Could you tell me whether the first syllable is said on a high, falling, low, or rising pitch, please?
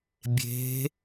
rising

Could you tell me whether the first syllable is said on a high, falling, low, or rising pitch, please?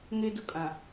high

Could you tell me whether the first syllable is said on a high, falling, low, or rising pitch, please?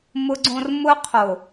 high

